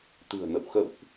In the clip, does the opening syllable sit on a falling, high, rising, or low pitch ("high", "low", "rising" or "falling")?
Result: low